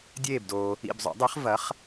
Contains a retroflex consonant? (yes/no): no